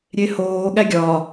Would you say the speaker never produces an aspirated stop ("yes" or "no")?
yes